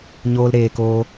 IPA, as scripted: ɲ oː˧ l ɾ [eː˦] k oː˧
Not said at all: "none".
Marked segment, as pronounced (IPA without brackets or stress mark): eː˨